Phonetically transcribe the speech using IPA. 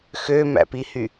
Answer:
x ø m æ̰ p i h y

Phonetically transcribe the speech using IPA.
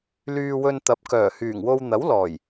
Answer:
l yː˧ w ɵ˧ n t̪ ɐ˨˥ p̚ k œː˨˩ h yː˨˩ ŋ w o˧ w n̪ ɐ˨˥ w l ɔː˨˩ j

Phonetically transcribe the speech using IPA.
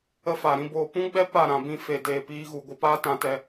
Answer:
ə˦ f a˨ ɾ ĩ˦ b oː˧ p ũ˦ ɡ͡b ɛ˦ p a˦˨ ɾ ã˨ b ĩ˧ f e˧ d eː˧ p iː˦ ɣ u˧ ɡʷ ɨ˧ p aː˦ t ã˧ t ɛ˧

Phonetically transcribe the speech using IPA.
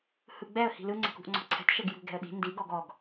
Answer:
h ɯ ɡ͡b ɛ ə̯ h i̤ l ɯ ŋ͡ǀ ɛ̤ k ṳ ʔ ŋ͡ǀ ɔ̤ ǀʰ ɛ̤ t ʃ ɛ ɡ j ṳ ɡ ɛ̤ ə̯ ɗ i̤ n d i ɡ ɔ ɡ ɔ ɡ

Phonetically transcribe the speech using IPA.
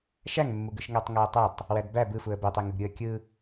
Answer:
ʃ æ ŋ mː u ɡ ɯ ʃ ŋ æ tˤ ŋ æ ə̯ tˤ ɯ tˤ | w æ d b æ b ɯ f u ə̯ b ø tˤ i ŋ ɯ ɡ ɾʲ ɯ ə̯ kʲ ɯ

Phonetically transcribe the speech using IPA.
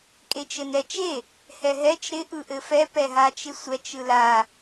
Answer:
kʼ e t͡ʃ ɘ n ɛ t͡ʃ e | h ɛ ɦ ɛ t͡ʃ ɾ ɪ ʔ ɯ ʔ ɘ f ɛ p ɛ ɦ a t͡ʃ ɪ sʷ ɛ t͡ʃ ɯ l a

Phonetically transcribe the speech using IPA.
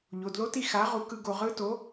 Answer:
ʎ o˩˧˩ d l o˦˥ t i˥˧ x a˨˥ ʁ u˨˥ k ɯ˦˥ ɡ o˧ ʁ ɯ˦˥ t o˨˥

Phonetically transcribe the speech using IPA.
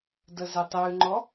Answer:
d ə z ɪ tˤ ʉ ŋ͡ǃ ɔ

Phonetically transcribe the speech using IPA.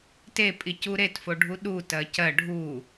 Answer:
t e pʼ i c u ɾ e t f o ɖʱ u ɗ u t ɜ c ɜ ɖʱ u

